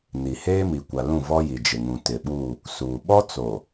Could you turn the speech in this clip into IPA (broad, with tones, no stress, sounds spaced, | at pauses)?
n i˨ h eː˦ m i˨ kʷ a˨ l ũ˦˨ v ɔ˦ j i˨ d͡ʒ ɪ˨ ŋ ũ˨ t ɪ˨ ɓ uː˦˨ | s uː˨ ɓ ɔ˦ t͡s o˨